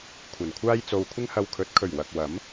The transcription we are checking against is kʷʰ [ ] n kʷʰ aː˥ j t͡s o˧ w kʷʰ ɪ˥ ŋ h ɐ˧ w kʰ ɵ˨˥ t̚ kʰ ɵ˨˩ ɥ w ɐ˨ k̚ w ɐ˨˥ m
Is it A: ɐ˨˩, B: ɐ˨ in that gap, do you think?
A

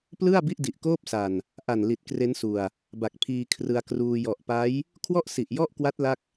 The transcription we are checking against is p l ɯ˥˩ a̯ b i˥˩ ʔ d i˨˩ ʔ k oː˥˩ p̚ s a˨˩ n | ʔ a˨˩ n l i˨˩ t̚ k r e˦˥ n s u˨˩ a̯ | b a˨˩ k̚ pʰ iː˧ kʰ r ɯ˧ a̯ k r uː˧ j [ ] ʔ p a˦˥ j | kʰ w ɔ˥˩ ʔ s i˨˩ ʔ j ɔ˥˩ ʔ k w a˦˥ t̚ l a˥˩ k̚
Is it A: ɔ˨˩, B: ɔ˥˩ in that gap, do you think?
A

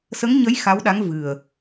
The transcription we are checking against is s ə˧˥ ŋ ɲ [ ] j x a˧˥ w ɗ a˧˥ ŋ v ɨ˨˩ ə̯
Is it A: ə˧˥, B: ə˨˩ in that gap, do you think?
A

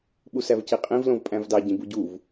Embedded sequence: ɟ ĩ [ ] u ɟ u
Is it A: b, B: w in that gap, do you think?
A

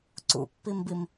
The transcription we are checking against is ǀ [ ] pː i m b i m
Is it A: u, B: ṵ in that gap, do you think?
B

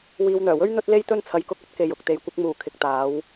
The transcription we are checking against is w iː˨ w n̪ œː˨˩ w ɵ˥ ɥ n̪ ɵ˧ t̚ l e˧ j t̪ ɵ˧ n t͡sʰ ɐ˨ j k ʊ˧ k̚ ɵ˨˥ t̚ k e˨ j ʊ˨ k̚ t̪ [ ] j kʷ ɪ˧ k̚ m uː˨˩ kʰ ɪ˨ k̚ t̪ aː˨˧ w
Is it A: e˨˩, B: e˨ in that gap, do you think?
B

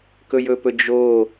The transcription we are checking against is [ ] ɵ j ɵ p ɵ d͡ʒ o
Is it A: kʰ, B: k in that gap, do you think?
B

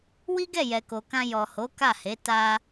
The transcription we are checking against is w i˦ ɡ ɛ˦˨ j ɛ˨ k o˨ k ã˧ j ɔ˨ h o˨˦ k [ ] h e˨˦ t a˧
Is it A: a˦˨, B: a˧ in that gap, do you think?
A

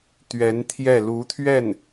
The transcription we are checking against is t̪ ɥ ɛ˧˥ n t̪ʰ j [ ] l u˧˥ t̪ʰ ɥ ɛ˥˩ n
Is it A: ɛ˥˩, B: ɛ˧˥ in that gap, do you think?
A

